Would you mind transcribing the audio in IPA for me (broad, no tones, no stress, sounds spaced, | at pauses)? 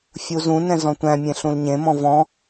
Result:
fʲ u z ũ n ɛ̃ z ɔ̃ tʷ æ̃ mʲ ẽ ɬ ũ l ɲ ẽ m ɔ̃ v ɔ̃